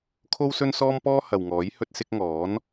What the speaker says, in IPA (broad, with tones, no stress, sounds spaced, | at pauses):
kʰ o˥ w s ɵ˥ n s ɔː˥ m p ɔː˥ h ɐ˨ w ŋ ɔː˨˥ j h ɵ˧ t̚ s ɪ˧ k̚ ŋ ɔː˨˥ n